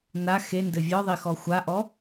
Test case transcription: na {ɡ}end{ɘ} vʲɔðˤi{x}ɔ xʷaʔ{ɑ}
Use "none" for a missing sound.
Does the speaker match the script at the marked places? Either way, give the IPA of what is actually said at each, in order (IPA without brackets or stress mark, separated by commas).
x, ɘ, x, ɔ